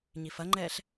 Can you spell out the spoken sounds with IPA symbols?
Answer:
ɲifɐŋ͡ǃɛːɬ

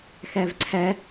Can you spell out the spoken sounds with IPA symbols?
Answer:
xævǀʰæ

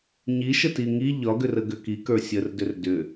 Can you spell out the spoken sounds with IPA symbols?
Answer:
ɲiʃəti ŋi ʎɒɡʏrə ɡʏkikə˞ sʲərdʏr dʏ

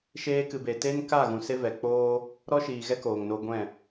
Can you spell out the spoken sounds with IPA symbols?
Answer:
ʃeː˧ kɨ˨be˨ te˦nka˦˨ɣũ˨ se˦vɛ˨ k͡poː˦ | ɾɔ˦ʃiː˨ɣɛ˦ koː˨ŋno˧ɡʷɛ̃˦˨

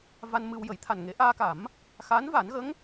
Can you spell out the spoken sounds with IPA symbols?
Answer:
va˧nmɨ˧wjə˨˩˦j t̪ʰa˨˩nŋe˨˩˦ʔaː˧ka˨˩˦m | xa˧˥n va˨˩˦nɣə˧˥ŋ

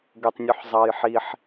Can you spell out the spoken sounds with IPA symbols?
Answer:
ɡøtˤnʲuħzˤɑjħiħ

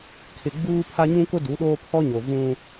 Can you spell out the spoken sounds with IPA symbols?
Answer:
kʰɪ˨ɡ͡buː˦pʰa˦ ɲũ˦kʊ˦ du˨˦ɗoː˦ pʰɔ˦ɲo˨ vũ˦

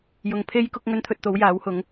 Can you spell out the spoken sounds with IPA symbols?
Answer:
jʊ˨ŋpʰe˥jkʊ˥k̚ ŋɵ˥nt̪ʰɵ˧t̚t̪o˨˥w jaː˨˥whʊ˨˥ŋ

